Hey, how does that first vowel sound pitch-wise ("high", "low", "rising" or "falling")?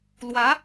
rising